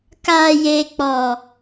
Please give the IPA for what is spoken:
k aː˦ j eː˦ k͡p ɔ˦

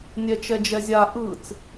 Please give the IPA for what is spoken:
nʲ ɛ t͡ʃ ɛ d͡ʒ ɛ zʲ a ʔ ɯ t͡s

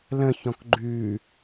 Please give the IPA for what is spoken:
l ə̃ ç ɔ̃ k ɡ͡ǃ ʉ

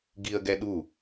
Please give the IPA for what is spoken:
ɡ i ə̯ ɡ ɛ ɗ u

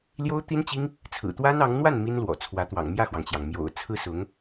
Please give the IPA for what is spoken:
l j o˥ ʊ̯ t̪ i˥ n t͡ɕ i˥ ŋ | t͡sʰ ɹ̩˨˩ t̪ w a˥ n ɑ˧˥ ŋ n̪ w a˥˩ n m i˥ n l w ɔ̰˨˩ t͡sʰ w ä˧˥ t̪ w ɑ̰˨˩ ŋ m j ä˥˩ x w ɑ˩ ŋ t͡ɕ j ɑ˩ ŋ m j o̰˨˩ ʊ̯ t͡sʰ ɹ̩˥ s ʊ˧˥ ŋ

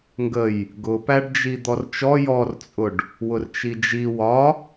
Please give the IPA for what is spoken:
ŋ ɡ ə j | ɡ ʊ p æ ɖ d͡ʒ i d̪ ɔ r t͡ʃ ɔ j ɔ r t͡sʼ ʊ ɖ | w ʊ r t͡ʃ i d͡ʒ i w ɒ

